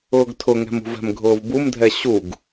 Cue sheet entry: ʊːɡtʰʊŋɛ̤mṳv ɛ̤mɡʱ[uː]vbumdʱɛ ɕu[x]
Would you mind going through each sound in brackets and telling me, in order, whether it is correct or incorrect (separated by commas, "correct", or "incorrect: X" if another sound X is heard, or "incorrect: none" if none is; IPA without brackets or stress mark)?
incorrect: ʊː, incorrect: ɡ